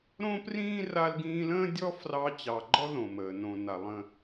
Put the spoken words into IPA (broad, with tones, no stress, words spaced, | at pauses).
ɾõ˥prĩː˥ ra˦lɡĩː˦lə̃ː˥ dʲɔ˥ frɑ˦t͡ɕɑ˨ɡ͡ǃɔ˥ ðõ˨məː˩nõ˨na˨ lˠə̃˨